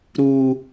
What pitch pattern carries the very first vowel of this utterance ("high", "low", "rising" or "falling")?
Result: high